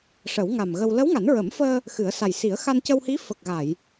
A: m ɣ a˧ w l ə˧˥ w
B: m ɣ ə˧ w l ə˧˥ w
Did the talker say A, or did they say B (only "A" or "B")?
B